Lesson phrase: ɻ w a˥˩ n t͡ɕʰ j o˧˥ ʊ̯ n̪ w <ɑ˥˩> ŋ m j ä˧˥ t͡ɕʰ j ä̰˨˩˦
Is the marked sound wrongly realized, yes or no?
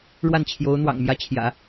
yes